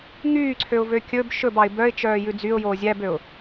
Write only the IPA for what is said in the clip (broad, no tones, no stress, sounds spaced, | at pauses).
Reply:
ŋ yː ǀʰ ø ʊ̯ v ø kʲ ɵ b ʃ ɵ b ɑ ɪ̯ b œ ɪ̯ t͡ʃ œː j ʉ d͡z y ʊ̯ j oː zʲ æ b ø ʊ̯